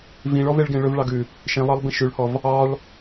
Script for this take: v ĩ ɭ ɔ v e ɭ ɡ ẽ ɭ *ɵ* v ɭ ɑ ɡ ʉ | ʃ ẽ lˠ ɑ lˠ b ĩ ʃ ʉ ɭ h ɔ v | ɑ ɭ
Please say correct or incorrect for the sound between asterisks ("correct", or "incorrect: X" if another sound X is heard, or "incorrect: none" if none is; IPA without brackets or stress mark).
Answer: correct